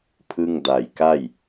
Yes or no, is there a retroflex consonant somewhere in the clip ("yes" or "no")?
no